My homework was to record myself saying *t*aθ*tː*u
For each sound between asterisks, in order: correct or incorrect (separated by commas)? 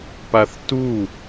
incorrect, incorrect